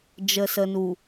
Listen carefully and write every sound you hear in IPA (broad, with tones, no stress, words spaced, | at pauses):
d͡ʒə˨sə˨nu˨